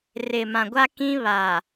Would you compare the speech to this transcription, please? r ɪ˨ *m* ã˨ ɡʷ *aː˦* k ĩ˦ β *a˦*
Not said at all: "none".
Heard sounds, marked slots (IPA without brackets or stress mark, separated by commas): m, a˦, a˨